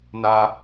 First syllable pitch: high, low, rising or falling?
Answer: low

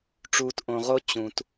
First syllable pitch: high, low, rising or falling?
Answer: low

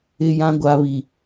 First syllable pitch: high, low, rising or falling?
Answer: low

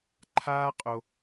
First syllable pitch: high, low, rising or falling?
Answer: high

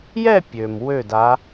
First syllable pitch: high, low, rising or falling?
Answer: falling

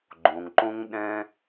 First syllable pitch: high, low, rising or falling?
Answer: low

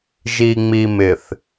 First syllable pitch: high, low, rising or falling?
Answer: low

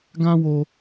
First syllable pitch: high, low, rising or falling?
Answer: high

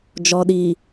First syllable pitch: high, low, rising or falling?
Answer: low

